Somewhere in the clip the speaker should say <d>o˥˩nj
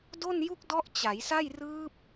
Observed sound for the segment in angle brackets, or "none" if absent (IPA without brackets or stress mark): d